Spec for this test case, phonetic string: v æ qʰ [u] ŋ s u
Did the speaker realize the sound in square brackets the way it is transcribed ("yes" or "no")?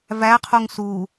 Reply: yes